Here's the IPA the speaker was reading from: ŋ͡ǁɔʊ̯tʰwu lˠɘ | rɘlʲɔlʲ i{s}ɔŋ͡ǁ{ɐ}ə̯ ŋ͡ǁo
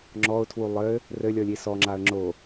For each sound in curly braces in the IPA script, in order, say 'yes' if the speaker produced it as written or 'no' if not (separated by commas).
yes, no